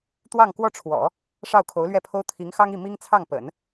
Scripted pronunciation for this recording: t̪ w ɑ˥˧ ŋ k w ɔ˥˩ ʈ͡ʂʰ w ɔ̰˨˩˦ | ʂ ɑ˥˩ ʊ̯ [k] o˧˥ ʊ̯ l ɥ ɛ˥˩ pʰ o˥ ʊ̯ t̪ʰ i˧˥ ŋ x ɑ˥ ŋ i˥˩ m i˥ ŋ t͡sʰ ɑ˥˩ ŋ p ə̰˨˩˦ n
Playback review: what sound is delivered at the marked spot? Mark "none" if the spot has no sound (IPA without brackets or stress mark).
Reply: kʰ